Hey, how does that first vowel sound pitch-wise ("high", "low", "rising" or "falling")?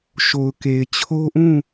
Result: low